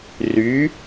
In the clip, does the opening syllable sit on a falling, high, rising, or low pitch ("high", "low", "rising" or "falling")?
rising